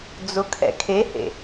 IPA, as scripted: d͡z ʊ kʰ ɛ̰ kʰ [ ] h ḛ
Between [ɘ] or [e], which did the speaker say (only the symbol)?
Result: e